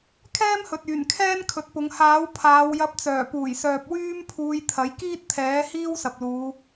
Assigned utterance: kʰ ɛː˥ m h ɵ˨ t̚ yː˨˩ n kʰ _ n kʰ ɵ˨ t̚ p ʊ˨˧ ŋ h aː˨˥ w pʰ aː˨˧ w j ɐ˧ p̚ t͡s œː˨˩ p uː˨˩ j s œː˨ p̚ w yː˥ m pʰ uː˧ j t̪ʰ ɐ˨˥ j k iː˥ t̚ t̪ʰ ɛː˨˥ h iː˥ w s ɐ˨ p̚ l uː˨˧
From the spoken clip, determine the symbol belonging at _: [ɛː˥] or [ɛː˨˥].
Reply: ɛː˥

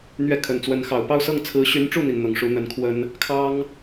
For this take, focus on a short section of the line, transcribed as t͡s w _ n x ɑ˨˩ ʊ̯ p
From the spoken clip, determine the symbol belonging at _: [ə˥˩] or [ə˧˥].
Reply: ə˧˥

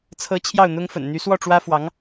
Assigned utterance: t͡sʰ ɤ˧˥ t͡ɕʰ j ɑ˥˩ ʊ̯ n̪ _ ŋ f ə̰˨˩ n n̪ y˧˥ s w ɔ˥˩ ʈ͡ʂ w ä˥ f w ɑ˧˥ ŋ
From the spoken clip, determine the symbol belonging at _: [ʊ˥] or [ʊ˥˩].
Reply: ʊ˥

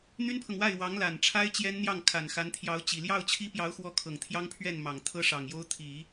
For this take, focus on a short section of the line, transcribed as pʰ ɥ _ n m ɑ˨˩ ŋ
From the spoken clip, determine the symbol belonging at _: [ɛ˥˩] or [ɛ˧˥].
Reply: ɛ˥˩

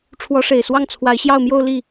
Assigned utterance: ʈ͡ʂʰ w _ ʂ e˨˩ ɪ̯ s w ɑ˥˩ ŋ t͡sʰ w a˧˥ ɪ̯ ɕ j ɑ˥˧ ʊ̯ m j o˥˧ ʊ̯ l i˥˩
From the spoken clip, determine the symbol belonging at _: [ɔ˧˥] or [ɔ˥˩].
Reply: ɔ˧˥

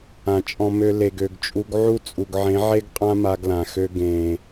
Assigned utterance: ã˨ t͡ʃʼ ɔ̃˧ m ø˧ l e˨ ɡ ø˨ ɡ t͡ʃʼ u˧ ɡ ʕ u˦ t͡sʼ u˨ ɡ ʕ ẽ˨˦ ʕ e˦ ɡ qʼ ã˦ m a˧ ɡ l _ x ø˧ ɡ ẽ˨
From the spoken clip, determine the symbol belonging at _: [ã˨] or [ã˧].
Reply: ã˨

